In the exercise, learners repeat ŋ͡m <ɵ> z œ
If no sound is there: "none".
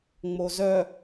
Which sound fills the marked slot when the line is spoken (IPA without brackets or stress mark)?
o